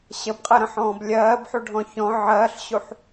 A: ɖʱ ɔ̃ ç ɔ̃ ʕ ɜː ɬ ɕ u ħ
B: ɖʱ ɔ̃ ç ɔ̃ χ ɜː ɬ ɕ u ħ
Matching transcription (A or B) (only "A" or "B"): A